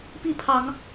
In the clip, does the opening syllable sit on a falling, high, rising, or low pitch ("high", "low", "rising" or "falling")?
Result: falling